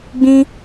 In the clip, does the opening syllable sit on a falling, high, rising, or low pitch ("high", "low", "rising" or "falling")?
high